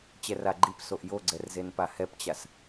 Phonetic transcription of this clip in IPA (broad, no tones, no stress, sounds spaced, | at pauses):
t͡ɕ ɛ r a ɡ͡ǃ i p s o ʔ j o ɡ͡ǀ ɛ r z e n p a h ɛ p t͡ɕ a s